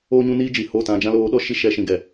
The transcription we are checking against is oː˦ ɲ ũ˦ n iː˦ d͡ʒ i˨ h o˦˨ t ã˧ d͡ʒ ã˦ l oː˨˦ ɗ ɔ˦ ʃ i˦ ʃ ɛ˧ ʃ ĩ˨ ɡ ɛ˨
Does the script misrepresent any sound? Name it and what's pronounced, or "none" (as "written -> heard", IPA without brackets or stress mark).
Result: none